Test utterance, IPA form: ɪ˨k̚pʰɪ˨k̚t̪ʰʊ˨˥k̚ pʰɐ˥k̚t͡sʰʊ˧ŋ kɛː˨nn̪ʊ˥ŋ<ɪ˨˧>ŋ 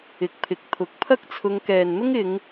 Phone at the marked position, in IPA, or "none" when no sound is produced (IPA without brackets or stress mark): ɪ˨˧